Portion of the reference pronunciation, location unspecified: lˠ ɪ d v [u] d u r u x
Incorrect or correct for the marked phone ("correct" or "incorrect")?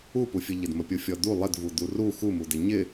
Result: correct